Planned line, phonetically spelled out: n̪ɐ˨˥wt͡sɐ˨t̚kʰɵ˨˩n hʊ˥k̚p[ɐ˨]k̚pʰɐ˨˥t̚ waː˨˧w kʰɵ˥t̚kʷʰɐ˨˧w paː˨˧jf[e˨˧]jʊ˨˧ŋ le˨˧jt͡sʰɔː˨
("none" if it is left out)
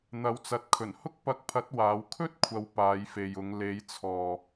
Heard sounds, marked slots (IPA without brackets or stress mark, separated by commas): ɐ˧, e˨